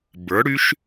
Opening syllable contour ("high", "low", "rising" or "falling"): rising